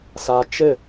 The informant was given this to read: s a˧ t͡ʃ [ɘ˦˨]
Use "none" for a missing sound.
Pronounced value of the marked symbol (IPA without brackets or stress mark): ɘ˦˨